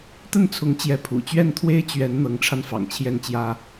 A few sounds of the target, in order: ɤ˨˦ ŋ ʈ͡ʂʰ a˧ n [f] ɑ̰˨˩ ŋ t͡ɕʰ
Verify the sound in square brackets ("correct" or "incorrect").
correct